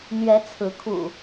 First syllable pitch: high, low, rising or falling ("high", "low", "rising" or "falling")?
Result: rising